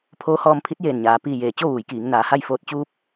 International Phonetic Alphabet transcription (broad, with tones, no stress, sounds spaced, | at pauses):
pʰ oː˧˥ h ɔː˧ m pʰ i˧˥ t̚ j eː˧˩ n ɲ aː˩ p iː˧˩ j eː˩ t͡ɕ o˥˨ ʋ uː˩˧ j k iː˩˧ ŋ n aː˩˧ h a˥˨ j f oː˧˩ t̚ t͡ɕ uː˧ p̚